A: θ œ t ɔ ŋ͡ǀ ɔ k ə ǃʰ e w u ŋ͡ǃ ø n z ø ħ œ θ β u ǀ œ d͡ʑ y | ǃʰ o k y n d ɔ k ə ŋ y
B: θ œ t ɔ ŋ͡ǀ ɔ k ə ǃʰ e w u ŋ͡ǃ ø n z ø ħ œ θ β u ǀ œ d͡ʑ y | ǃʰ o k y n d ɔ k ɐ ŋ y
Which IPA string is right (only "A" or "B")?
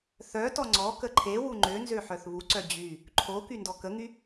A